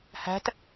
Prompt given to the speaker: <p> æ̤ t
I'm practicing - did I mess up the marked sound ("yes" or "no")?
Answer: yes